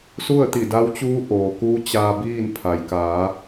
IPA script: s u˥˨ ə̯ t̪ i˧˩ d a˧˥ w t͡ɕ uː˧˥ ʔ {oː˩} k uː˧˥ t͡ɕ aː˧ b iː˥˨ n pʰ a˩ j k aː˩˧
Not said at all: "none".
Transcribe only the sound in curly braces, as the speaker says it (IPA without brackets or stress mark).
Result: oː˩